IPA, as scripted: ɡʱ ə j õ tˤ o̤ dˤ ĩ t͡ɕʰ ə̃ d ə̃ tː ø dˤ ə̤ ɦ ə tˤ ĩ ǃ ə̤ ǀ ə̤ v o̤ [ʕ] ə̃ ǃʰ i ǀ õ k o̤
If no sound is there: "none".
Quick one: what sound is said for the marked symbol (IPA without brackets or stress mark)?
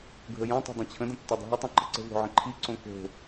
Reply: ʕ